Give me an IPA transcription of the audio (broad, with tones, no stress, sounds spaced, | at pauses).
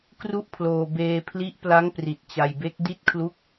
k r u˥˩ ʔ pʰ l oː˧ b eː˧ pʰ l i˦˥ ʔ p l a˦˥ ŋ p r i˨˩ t̚ t͡ɕ a˧ j b e˦˥ k̚ d i˦˥ t̚ kʰ l u˦˥ k̚